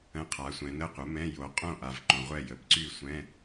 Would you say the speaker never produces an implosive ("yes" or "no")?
yes